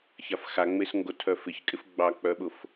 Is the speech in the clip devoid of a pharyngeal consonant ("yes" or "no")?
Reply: yes